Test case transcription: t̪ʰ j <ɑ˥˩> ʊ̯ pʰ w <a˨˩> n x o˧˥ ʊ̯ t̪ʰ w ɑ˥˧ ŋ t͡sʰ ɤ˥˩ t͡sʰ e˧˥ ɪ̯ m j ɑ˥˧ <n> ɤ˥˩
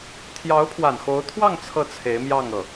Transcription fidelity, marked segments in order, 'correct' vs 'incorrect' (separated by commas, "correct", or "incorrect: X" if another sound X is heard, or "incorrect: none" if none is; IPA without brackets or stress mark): incorrect: ɑ˧˥, correct, incorrect: ŋ